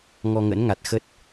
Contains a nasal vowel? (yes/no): no